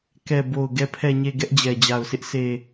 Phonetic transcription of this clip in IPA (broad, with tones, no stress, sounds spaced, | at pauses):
k ɛ˨ b o˨ ʊ̯ ɡ ɛ˨ pʰ ɛ˨ ɲ e˨ ɡ ɛ˦ ʔ d͡ʑ ɛ˨ d͡ʑ a˨ ʊ̯ sʰ ɪ˦ ʔ sʰ e˨